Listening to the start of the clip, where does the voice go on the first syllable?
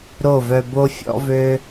falling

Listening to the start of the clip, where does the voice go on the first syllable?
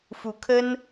rising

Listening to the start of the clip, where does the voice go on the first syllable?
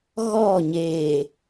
falling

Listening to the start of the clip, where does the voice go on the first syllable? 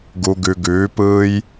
low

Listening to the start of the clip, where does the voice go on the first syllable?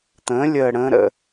rising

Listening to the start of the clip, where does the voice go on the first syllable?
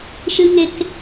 high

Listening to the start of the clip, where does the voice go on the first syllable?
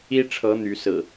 high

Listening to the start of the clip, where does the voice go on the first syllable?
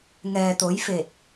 low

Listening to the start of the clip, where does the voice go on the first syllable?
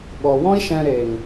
low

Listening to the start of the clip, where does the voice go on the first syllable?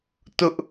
high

